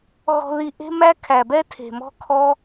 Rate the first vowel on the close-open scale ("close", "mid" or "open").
mid